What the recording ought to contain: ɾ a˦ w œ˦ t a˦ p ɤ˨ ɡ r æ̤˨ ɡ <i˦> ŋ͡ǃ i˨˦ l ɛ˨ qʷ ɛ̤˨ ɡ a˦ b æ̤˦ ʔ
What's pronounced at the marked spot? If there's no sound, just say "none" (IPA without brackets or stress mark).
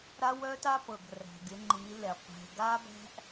ɪ˦